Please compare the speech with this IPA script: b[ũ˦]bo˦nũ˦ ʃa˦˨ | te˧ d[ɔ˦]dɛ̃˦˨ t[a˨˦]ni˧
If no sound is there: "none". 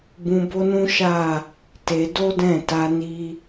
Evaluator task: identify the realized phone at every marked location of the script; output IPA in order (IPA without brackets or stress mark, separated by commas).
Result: ũ˧, o˦, a˧